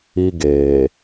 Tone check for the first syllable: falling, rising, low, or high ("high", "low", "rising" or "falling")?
high